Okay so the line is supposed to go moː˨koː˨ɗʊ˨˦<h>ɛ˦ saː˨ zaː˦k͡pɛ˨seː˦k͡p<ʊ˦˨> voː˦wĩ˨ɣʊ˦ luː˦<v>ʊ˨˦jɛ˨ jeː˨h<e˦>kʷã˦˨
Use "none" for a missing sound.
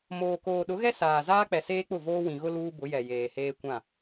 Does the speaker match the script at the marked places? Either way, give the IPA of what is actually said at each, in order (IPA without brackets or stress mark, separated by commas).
ɣ, ʊ˦˨, b, eː˦